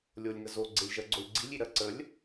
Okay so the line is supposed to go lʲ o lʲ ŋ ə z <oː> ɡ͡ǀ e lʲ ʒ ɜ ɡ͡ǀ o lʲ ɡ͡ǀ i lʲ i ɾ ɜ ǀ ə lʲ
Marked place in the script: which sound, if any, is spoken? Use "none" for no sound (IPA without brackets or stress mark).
o